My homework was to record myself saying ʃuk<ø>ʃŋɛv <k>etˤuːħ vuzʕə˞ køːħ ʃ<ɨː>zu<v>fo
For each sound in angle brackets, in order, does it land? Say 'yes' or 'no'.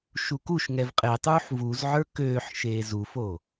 no, no, no, no

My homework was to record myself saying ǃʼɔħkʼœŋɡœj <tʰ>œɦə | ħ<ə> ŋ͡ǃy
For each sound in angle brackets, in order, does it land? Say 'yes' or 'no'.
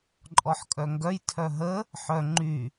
yes, no

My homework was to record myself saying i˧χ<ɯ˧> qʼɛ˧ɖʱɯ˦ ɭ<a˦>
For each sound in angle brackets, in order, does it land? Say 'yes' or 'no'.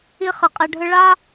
no, yes

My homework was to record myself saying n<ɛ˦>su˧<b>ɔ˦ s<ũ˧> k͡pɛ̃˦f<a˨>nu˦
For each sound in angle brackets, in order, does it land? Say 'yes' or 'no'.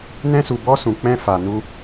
no, yes, yes, no

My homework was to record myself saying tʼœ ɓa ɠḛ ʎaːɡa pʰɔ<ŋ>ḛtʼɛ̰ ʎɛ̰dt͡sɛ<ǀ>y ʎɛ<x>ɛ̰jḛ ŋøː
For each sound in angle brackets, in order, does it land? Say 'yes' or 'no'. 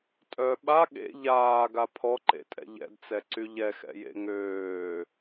no, yes, yes

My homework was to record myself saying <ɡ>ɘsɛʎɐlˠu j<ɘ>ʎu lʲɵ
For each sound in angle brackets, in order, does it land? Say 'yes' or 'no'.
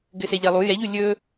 yes, no

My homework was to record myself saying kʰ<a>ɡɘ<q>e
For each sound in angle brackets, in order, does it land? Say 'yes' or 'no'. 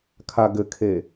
yes, no

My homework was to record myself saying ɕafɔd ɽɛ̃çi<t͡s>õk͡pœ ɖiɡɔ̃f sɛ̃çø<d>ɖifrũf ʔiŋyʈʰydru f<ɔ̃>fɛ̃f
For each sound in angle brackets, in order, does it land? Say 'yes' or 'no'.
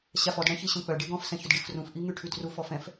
no, yes, no

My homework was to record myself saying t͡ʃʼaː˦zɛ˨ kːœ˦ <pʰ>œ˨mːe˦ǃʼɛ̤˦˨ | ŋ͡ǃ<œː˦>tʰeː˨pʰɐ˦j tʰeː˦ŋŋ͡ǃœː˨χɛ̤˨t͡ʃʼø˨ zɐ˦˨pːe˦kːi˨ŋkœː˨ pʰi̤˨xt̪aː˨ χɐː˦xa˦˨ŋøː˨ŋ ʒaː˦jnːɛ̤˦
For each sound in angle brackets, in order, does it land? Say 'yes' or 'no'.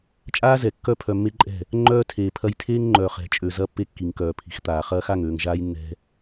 yes, yes

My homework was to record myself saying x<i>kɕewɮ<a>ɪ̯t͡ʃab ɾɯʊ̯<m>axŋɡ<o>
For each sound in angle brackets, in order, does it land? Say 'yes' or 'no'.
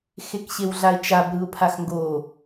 no, yes, no, yes

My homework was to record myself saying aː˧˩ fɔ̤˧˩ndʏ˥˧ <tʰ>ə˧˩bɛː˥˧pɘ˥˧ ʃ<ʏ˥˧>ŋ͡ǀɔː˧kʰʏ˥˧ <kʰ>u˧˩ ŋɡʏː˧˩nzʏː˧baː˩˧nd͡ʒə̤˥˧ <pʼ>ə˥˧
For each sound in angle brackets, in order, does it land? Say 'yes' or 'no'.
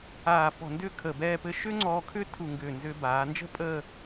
no, no, no, yes

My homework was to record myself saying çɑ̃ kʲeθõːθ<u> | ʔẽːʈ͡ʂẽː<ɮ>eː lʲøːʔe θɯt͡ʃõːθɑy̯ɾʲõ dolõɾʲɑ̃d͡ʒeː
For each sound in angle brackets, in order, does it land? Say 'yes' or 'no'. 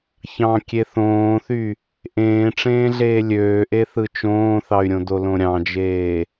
no, yes

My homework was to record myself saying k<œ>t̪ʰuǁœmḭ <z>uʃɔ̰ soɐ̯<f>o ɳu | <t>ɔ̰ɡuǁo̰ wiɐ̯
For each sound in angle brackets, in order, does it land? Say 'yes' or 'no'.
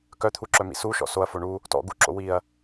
yes, no, yes, yes

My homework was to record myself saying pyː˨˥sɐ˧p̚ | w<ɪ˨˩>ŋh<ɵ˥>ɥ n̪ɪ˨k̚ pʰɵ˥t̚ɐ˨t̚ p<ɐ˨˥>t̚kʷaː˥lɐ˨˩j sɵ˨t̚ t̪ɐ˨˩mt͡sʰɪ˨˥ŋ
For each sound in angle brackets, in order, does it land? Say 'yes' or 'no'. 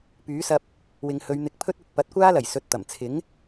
no, no, yes

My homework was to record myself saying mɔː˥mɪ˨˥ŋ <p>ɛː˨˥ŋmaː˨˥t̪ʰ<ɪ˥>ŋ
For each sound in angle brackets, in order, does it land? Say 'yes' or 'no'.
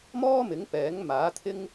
yes, yes

